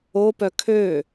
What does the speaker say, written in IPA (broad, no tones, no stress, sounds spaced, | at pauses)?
o p œ kʰ ø